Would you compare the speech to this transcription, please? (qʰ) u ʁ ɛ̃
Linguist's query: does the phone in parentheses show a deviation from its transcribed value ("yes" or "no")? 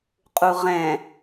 yes